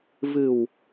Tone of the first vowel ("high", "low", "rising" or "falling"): low